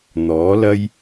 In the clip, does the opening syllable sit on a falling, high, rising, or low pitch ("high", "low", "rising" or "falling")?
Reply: rising